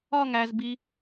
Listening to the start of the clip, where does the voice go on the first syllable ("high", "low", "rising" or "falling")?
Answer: falling